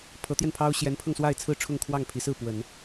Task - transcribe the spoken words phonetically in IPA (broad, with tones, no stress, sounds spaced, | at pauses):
pʰ ɤ˧˥ t̪ j ɛ˧ n pʰ ɑ˥ ʊ̯ ɕ j ɛ˧˥ n pʰ ɤ˧ ŋ s w a˥˧ ɪ̯ t͡sʰ ɹ̩˥˧ ʈ͡ʂʰ ʊ˥˧ ŋ kʰ w ɑ˥˩ ŋ pʰ i˧˥ s ɹ̩˥˩ p w ə˨˩˦ n